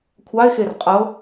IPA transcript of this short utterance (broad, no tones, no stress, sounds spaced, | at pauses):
kʷʰ ɑ e̯ x e r qʼ ɤ